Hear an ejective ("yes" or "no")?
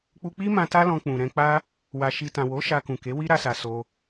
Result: no